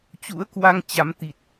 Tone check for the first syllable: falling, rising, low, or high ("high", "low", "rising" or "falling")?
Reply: rising